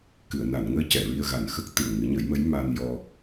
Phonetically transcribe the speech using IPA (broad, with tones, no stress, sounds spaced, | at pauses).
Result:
k ɨ˨˩˨ ə̯ n a˨˩˨ n ŋ əː˧˥ c ɛ˨˩˨ ɹ i˧ ə̯ ɣ a˨˩ n x ə˦˥ k̚ t̪ ɨ˨˩ ə̯ ŋ ɨ˨˩˦ ɲ ə˨˩˦ j m ə˧˥ j m a˧ n j ɔ˧